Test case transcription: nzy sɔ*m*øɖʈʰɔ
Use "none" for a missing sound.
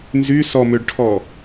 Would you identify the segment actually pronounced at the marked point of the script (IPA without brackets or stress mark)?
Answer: m